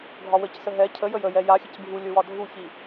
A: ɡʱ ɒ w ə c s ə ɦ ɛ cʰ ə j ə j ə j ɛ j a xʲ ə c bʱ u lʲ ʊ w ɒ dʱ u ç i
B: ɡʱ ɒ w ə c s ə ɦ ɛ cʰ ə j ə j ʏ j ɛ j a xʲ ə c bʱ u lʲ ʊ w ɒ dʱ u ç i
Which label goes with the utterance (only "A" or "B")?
A